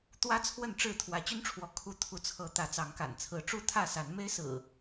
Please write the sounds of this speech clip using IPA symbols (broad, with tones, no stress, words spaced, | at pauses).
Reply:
t̪wä˦ t͡sʰwə˥˨nʈ͡ʂɻ̩˥˨ t̪ʰwä˨˦t͡ɕy˦nʈ͡ʂʰwɔ˨˦ kʰu˦ t̪ʰu˨˦t͡sʰɤ˨˦ t̪ä˨˦t͡sɑ˨˦ŋka̰˨˩nt͡sʰɹ̩˨˦ ʈ͡ʂu˦t̪ʰä˥˨sa˨˦nme˦ɪ̯ sɹ̩˨˩